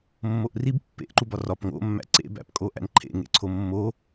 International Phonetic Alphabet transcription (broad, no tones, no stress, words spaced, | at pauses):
mːoʔrib pːḛʔ ǃubɒrɒp ŋo̰mːæ̰ ǀḛbæ̰pkʼo ʔæ̰nǃʰḛŋḛ ǀʰomːo